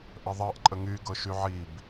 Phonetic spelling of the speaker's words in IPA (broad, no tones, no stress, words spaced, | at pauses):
ʔəðˤɤʔ ǃʼəŋy ɡɤʃyʕib